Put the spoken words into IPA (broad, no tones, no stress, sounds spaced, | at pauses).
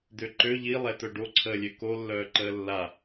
d ø ǃ ø ʎ i lˠ ɛ t œ ɖ o ǀʰ əː lʲ ø k o lː œː ǃ əː lː a